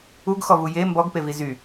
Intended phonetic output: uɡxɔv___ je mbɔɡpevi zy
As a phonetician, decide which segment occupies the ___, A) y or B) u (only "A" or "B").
B